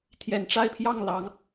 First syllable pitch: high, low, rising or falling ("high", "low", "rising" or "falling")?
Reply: low